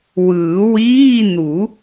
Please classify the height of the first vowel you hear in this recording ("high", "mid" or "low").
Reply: high